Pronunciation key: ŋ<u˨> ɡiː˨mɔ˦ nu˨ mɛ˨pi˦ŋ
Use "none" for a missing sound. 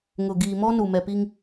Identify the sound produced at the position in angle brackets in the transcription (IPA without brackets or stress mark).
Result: ʊ˨